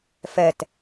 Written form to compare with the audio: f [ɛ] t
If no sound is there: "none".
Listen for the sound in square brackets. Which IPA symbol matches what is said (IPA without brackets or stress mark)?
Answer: ɛ